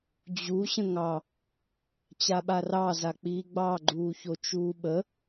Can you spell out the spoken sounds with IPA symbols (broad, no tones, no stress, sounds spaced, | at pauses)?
d͡ʑ u ɕ ə̃ ŋ ɑ | t͡ɕ a ɓ a r ɑ z a k͡p iː ɡ͡b ɑ ɡ͡ǃ uː ç o t͡ʃ uː ɓ ə